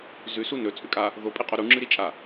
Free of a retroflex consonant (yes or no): yes